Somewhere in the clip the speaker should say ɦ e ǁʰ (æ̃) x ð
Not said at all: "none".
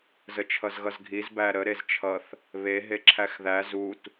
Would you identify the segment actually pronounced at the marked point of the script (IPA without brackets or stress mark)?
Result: æ